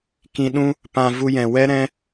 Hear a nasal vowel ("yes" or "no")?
yes